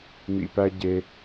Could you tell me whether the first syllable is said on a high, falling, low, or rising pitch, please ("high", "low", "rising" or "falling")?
low